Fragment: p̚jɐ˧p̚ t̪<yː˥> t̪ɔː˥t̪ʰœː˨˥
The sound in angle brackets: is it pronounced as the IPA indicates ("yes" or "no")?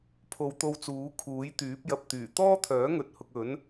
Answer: no